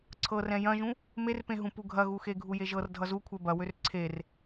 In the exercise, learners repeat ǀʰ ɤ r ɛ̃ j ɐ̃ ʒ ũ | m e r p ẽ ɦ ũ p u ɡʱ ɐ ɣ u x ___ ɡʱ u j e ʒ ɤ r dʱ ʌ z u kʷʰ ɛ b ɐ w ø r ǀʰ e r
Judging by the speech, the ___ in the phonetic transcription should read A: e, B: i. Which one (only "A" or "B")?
A